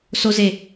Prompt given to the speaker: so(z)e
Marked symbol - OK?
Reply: yes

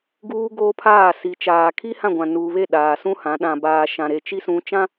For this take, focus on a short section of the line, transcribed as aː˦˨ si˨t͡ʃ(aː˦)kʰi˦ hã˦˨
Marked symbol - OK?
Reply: no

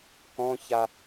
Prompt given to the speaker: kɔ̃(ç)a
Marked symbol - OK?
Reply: yes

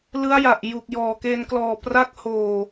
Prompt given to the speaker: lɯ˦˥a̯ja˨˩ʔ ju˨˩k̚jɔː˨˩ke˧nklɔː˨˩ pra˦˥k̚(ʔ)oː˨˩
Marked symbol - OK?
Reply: no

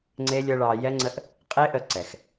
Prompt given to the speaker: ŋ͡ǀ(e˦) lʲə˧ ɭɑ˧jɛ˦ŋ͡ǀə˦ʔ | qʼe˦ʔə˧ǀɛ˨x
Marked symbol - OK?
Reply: yes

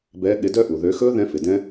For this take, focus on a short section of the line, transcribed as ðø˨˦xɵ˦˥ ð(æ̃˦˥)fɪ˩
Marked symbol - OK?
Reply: no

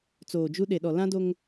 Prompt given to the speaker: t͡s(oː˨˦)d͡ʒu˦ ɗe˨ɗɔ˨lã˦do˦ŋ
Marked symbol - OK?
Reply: no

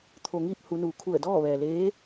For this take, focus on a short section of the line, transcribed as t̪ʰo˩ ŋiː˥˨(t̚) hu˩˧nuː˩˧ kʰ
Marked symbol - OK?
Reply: no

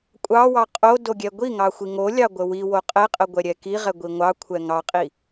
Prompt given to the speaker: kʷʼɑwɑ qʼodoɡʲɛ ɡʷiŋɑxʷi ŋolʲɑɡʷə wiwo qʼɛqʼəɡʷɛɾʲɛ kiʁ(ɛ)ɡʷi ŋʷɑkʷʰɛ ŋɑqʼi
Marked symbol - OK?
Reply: yes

